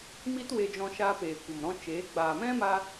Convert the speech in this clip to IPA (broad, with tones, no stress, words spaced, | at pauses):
mi˦twe˧d͡ʒɔ̃˧ ʃaː˧peː˨kʷə˨mɾɔ̃˧ t͡ʃeː˨˦ ɡ͡baː˨mɛ̃˦ ma˦